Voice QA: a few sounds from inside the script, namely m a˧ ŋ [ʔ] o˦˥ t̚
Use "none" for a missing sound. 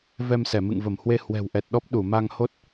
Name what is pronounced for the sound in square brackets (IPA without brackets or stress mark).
h